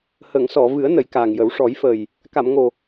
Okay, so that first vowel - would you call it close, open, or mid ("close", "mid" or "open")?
mid